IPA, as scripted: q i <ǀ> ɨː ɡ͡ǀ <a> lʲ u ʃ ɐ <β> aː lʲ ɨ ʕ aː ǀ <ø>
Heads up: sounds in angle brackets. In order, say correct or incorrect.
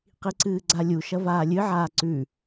correct, correct, incorrect: v, incorrect: ʉ

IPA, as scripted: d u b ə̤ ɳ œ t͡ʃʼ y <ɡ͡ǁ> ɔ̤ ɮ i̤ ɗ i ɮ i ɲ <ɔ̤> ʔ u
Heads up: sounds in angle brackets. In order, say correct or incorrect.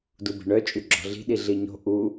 correct, incorrect: o̤

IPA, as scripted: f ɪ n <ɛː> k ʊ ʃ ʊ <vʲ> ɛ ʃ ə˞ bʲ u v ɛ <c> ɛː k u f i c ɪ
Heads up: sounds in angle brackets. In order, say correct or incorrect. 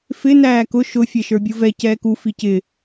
incorrect: æː, incorrect: fʲ, correct

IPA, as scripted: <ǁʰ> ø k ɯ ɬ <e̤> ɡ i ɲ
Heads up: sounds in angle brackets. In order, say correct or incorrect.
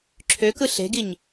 correct, correct

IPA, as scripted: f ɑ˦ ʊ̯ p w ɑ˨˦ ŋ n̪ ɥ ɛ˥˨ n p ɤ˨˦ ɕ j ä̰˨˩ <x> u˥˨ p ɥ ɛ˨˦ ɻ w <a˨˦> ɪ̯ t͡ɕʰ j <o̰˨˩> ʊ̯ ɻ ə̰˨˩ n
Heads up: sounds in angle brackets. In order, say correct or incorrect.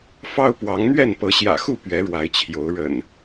correct, correct, incorrect: o˨˦

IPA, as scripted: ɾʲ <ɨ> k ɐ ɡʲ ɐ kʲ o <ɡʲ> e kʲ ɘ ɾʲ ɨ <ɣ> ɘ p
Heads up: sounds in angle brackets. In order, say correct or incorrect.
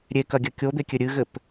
incorrect: e, incorrect: d̪, correct

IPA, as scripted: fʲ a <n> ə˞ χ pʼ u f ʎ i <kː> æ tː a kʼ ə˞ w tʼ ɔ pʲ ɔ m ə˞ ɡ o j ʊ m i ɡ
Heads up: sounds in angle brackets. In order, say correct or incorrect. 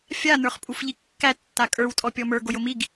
correct, correct

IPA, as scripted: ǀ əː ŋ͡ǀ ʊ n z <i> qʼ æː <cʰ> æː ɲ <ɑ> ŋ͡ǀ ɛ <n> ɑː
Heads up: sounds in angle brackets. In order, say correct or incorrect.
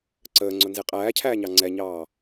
correct, correct, correct, incorrect: ɲ

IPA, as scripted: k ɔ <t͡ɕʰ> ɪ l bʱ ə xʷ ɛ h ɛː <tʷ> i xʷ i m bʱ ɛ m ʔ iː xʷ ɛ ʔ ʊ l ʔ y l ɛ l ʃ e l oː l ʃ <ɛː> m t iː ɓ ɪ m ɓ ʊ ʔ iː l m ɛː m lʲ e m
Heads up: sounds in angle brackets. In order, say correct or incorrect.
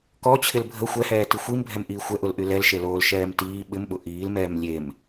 correct, incorrect: t, correct

